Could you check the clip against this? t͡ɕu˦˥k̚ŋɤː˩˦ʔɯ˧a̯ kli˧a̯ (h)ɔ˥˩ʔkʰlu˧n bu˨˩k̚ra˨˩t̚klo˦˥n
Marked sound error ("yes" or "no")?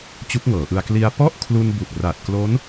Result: yes